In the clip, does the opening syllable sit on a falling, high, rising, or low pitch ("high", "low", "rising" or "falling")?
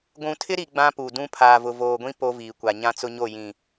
low